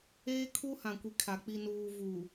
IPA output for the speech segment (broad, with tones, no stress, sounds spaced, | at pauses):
eː˦ kʰ u˦ h ã˨ kʷ i˨ kʰ a˨ k͡p i˨ n uː˨ v uː˨